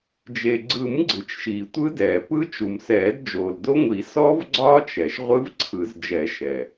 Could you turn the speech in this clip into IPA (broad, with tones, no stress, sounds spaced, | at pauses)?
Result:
d͡ʒ e˩ ɡ͡ǀ ɯ˨˩˦ m ɡ͡ǀ ɯ˩ t͡ʃ ʃ iː˩ tʷ ɯ˦˥ d ɛː˩ p ɯ˦˥ t͡ʃ u˩ m s ɛː˨˩˦ d d͡ʒ oː˩ l d o˦˥ ŋʷ i˨˩˦ s ɔ˦˥ v ɡ͡ǀ ɒː˦˥ t͡ʃ ɛ˩ ʃ ʁʷ ɯ˦˥ v ǀʰ ɯ˨˩˦ z d͡ʒ ɛ˨˩˦ ʃ ɛ˩